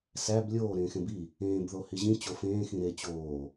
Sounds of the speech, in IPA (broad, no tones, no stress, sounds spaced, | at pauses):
s æ b lʲ oː ɾ ẽː x ẽ b i | ẽː b ð o h i ʑ ĩ t͡ɕ o f ẽː x ĩ ɾ e t͡ɕ oː